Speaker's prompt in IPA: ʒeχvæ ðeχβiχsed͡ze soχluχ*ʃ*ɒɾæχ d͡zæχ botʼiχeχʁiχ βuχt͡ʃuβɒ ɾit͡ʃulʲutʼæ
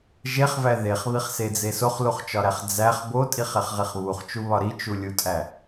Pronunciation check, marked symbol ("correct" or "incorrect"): incorrect